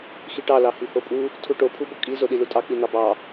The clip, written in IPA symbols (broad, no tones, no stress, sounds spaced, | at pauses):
x i ʈ ɑ l ɑ h i h o pʼ u | tʰ u ʈ o pʰ u b o kʼ i z o ɗ i l u tʼ ɑ k͡p i n̪ ɑ b ɑ